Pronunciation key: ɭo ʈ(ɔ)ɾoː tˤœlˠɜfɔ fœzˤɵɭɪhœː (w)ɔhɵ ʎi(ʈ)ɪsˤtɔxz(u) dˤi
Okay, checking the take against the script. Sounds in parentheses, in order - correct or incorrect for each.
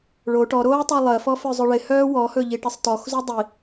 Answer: correct, correct, correct, correct

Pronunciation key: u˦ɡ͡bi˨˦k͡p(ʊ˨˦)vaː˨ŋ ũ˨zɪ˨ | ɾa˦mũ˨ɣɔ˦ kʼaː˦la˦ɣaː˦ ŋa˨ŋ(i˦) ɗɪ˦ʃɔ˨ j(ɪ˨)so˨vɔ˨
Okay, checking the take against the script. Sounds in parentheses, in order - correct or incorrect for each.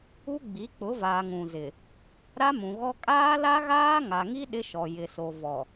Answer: correct, correct, correct

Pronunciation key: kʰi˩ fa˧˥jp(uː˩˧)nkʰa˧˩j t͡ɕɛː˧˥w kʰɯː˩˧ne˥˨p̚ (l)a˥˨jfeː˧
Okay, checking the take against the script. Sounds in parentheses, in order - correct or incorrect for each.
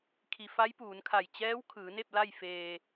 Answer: correct, correct

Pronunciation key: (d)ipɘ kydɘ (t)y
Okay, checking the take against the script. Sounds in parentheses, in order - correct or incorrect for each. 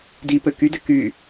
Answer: correct, incorrect

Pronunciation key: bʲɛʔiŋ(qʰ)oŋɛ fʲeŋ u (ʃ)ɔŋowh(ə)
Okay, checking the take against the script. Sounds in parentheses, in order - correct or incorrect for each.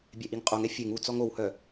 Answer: incorrect, incorrect, incorrect

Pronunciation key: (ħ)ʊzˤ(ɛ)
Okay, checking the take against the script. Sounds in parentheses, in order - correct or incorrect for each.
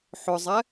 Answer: correct, correct

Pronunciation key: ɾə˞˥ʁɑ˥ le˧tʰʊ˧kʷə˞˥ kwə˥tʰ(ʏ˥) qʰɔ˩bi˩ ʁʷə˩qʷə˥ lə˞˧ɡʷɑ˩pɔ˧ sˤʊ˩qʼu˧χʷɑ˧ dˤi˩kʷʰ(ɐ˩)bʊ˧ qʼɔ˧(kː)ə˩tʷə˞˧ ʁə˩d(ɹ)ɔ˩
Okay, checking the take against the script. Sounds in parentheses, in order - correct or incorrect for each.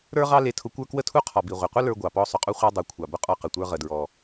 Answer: incorrect, incorrect, incorrect, correct

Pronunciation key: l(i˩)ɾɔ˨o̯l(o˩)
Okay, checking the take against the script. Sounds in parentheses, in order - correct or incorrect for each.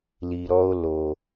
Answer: correct, correct

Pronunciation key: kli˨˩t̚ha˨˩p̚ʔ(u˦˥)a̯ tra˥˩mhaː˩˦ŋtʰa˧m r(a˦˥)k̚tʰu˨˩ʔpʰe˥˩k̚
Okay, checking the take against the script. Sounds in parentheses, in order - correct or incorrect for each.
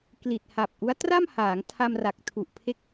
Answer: correct, incorrect

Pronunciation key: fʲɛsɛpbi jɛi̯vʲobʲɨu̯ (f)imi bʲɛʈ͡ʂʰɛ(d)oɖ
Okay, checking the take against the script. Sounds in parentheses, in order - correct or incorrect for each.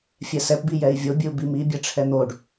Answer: incorrect, incorrect

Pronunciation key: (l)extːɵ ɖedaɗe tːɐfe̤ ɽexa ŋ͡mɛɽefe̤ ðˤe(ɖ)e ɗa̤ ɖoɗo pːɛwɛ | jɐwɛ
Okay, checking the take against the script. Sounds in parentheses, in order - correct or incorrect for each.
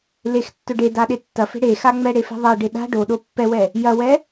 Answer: correct, correct

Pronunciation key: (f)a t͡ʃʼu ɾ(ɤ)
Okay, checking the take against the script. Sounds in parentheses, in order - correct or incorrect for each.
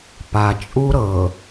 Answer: incorrect, correct

